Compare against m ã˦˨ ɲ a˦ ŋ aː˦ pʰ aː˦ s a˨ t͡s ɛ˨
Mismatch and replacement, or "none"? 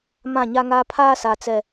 none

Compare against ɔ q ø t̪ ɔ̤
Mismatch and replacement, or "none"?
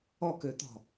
q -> k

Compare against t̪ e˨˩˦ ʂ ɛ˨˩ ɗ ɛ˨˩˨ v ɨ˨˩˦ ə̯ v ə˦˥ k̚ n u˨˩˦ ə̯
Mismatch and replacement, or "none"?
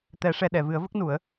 e˨˩˦ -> ɛ˨˩˦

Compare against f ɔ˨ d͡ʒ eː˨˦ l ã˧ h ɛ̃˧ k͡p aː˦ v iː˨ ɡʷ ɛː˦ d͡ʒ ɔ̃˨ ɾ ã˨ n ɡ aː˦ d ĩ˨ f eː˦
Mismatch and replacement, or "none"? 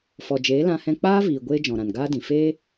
ɛː˦ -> eː˦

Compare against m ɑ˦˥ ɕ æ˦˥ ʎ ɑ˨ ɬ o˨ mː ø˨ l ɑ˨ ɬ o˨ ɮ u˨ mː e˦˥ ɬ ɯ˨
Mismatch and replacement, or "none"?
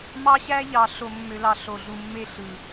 none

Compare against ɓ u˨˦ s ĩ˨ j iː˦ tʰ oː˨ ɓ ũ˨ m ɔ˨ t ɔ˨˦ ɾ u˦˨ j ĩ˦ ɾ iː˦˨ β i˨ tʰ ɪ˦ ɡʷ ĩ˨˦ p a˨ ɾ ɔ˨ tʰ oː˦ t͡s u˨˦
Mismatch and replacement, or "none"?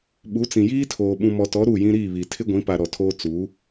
s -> t͡s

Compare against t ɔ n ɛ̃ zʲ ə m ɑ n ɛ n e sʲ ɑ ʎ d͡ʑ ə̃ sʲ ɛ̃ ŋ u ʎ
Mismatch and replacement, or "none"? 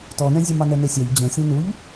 ŋ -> n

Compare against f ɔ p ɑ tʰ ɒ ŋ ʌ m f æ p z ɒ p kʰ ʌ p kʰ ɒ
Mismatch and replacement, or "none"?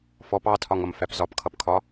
none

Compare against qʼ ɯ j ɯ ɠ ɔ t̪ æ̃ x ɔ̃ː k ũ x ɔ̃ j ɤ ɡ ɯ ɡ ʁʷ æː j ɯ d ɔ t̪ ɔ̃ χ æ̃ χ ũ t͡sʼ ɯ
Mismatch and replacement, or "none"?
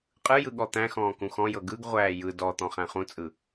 none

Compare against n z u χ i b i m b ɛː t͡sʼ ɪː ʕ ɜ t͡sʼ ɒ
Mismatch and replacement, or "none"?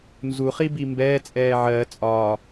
ɪː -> ɛː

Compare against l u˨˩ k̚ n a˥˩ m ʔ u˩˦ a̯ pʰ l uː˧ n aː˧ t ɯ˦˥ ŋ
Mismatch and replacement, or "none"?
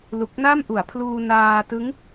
none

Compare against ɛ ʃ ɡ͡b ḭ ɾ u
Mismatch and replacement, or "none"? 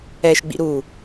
none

